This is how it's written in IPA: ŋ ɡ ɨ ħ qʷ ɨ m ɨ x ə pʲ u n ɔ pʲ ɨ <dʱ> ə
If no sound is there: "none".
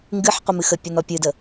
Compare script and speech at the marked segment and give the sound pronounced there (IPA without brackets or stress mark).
d